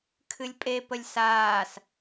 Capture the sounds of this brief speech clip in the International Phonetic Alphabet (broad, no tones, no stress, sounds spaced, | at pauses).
kʰ ɨ lʲ pʼ e p ə lʲ s aː s